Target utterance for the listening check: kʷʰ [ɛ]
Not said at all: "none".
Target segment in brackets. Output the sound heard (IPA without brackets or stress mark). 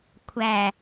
æ